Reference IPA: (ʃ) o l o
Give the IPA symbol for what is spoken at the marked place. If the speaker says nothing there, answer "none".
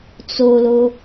t͡s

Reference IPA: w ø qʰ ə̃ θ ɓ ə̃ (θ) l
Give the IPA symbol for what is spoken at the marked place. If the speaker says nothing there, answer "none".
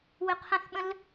none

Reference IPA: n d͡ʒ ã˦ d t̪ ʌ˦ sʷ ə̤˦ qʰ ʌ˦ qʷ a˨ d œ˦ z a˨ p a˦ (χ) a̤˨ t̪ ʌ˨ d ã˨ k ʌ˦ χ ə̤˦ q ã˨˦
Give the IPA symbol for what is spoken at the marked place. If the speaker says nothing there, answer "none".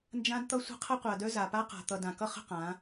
q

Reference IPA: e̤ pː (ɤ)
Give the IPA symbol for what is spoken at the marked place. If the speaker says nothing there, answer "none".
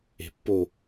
o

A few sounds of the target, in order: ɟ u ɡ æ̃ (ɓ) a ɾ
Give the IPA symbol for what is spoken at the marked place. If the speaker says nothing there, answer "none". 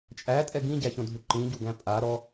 pʼ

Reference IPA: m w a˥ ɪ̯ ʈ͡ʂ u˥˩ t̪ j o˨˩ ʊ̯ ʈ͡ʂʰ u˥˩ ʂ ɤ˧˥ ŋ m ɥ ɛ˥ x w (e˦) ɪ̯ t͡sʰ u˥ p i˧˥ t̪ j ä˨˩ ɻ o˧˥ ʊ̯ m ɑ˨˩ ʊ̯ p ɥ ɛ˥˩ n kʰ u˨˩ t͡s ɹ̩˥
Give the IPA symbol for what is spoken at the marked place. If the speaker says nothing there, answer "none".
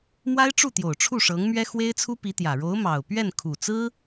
e˥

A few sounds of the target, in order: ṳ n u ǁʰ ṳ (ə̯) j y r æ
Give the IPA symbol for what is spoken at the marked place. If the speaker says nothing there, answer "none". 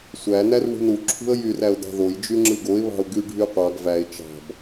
ə̯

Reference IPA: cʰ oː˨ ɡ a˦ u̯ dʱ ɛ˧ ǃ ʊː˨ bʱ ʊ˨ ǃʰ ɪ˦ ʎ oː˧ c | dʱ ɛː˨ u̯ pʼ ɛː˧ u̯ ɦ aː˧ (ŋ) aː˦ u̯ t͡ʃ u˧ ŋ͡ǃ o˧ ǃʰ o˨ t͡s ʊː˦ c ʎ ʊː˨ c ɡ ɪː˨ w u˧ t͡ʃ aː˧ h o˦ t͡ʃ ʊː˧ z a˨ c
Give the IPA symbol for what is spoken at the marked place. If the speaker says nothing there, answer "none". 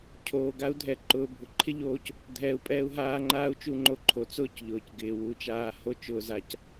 ŋ͡ǃ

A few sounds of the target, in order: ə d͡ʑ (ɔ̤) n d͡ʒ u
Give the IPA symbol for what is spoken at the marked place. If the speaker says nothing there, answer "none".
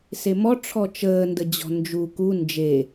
ɔ̤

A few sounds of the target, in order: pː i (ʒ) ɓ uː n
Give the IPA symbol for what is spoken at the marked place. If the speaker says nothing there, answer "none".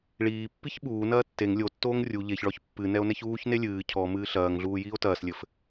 ç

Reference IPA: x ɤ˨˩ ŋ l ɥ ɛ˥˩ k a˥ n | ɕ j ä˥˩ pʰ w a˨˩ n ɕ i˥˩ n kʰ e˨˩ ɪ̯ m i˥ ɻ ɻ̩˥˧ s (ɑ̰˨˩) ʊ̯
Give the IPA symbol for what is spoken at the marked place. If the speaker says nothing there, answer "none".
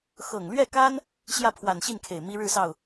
ɑ˥˩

